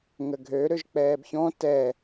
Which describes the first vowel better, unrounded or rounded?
unrounded